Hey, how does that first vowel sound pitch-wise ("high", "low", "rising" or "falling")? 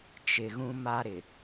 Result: low